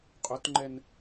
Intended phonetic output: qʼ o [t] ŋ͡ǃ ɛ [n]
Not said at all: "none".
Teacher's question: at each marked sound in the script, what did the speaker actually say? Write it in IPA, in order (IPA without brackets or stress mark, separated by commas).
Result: t, n